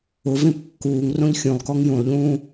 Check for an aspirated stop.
absent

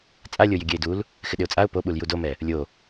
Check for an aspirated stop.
absent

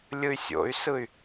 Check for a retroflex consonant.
absent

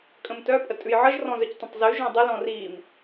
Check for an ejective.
present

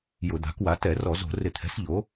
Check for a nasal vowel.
absent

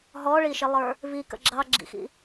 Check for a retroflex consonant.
present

